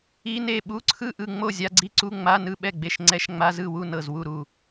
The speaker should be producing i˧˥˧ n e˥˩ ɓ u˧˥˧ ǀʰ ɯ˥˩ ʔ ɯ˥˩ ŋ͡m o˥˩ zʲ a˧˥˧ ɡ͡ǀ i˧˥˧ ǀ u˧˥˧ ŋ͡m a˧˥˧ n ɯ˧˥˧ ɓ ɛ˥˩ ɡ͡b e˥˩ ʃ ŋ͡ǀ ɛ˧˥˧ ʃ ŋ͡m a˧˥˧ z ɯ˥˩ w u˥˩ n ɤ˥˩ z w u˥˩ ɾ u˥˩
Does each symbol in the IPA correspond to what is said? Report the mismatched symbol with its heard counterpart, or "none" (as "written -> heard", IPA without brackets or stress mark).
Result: none